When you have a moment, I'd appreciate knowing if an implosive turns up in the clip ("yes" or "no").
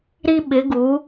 yes